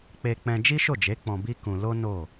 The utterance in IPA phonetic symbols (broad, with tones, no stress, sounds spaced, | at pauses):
k͡p e˧ k͡p ɛ̃˧ d͡ʒ i˦ ʃ o˦˨ d͡ʒ e˨˦ k͡p ɔ̃˧ b i˦ k ũ˧ l o˦ n o˦˨